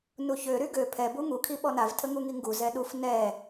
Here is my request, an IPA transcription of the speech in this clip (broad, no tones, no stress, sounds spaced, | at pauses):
n u ç ø ɾ y ɡ ø pʰ ɛ b u ŋ u kʰ i ɓ ɔ n a v tʰ ə ŋ u ŋ i ŋ ɡ u z ɛ ɗ u f n ɛ